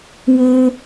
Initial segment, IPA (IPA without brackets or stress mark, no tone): w